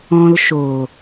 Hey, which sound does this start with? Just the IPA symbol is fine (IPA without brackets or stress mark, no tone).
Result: ɔ̃